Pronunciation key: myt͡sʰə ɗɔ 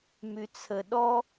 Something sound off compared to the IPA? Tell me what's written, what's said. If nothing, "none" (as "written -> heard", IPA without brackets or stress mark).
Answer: none